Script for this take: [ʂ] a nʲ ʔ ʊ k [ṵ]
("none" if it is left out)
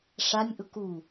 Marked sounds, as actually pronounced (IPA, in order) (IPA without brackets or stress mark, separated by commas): ʂ, u